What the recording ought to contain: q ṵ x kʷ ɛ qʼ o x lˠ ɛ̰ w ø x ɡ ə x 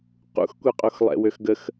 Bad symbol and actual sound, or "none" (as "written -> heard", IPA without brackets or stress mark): none